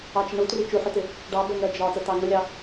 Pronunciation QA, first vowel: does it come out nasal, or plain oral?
oral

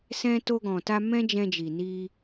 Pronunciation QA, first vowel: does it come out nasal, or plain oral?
nasal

